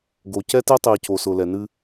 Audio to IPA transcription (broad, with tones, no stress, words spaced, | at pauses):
ɡo˨ cɛ˦te˦tˤi˨ co˨sʊ˨ lɛ˨nɨ˦